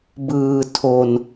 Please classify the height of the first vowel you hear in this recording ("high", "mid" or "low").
high